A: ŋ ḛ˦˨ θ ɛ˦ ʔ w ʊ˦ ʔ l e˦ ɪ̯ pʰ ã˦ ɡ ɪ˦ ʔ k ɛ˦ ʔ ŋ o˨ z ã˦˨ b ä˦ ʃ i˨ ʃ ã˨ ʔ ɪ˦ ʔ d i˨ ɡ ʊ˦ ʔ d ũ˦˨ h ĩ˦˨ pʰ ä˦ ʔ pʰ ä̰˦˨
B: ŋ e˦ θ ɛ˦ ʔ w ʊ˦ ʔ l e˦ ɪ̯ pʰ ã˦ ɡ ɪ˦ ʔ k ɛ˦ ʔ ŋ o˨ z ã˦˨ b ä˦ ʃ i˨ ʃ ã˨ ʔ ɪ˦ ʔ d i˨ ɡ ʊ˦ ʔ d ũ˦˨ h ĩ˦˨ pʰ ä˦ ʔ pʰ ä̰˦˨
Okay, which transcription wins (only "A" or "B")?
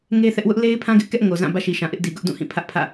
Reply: B